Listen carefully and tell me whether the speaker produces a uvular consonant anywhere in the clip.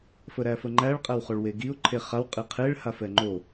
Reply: yes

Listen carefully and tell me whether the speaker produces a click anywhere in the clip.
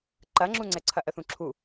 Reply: yes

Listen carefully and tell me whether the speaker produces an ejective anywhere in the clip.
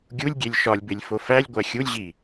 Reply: no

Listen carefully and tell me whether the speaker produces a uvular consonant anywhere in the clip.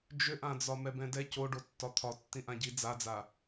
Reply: no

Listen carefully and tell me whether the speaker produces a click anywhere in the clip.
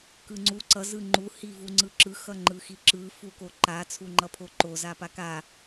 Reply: yes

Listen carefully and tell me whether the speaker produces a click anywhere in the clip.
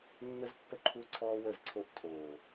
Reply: yes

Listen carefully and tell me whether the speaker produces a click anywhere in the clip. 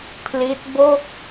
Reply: no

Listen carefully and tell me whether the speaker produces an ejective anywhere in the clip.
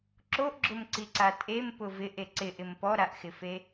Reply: yes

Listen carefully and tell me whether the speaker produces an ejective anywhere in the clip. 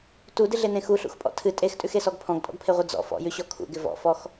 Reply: yes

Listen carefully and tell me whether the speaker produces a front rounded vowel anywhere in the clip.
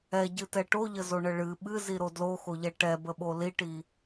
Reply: no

